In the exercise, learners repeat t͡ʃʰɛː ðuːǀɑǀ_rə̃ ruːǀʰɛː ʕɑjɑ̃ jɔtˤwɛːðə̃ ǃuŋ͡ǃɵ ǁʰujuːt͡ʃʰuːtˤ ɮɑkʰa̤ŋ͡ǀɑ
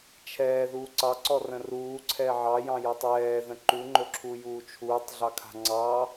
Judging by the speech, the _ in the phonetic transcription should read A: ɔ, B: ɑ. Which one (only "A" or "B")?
A